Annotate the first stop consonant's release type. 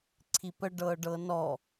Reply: click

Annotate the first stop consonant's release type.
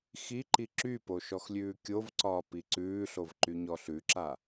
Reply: click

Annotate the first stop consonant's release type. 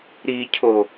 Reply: aspirated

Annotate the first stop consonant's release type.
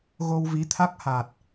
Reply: aspirated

